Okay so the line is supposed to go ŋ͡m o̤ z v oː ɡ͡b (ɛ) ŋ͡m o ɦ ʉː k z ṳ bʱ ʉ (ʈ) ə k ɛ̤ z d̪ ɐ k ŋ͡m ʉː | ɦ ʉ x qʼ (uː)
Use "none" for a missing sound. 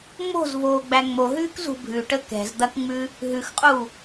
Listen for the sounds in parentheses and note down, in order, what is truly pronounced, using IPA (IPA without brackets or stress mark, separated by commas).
æ, ʈ, uː